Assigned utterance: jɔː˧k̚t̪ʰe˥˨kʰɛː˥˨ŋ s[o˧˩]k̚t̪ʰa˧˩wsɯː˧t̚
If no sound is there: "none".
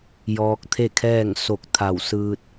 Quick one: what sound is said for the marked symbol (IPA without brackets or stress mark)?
o˧˩